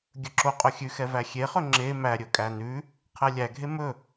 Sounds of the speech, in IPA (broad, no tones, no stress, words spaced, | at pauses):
ɡʲɵǁo qʼɵxʲʉxɛ væxʲeχɵ ŋ͡ǁe mæɾʲɵkʼæ nʉ | qʰɛlʲæɡʱe mɵ